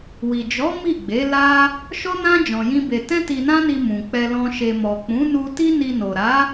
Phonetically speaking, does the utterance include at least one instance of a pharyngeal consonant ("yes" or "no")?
no